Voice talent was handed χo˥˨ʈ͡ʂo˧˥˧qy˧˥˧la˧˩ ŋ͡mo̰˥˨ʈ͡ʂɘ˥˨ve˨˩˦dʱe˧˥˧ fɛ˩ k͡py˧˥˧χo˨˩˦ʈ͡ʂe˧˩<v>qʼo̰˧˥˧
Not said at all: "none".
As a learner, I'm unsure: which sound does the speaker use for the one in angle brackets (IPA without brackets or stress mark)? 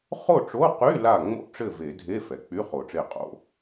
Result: none